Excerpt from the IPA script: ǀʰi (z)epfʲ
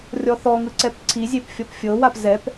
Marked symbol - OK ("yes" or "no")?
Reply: no